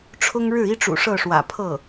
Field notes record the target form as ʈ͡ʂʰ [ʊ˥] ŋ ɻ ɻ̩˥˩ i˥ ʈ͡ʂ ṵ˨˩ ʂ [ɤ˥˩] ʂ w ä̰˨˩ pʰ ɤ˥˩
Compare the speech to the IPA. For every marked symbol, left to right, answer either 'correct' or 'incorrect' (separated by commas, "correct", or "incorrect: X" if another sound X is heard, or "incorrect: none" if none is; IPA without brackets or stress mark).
correct, correct